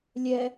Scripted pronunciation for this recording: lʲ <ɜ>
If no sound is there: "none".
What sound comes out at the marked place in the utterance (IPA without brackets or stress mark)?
ɛ